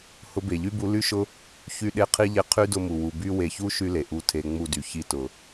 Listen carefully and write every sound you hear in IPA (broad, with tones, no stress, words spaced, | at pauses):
hʊ˧be˨ʎy˦bu˧ ly˦ʃʊ˦ | çy˧ɗe˧ qʰi˦ʎe˧ qʰy˦dʊ˧mu˨ wu˨by˦ we˨çu˦ ʃy˦le˨ʔu˧tʰe˧ ŋ͡mu˦˨dy˨ çi˧tʊ˨